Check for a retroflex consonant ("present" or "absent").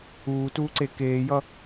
absent